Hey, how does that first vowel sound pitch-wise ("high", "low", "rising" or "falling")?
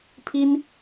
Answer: high